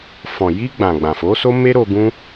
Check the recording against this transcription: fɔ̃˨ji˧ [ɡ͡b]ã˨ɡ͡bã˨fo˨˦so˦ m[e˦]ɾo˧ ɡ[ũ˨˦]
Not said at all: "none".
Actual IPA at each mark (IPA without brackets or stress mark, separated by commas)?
ɡ͡b, e˦, ũ˦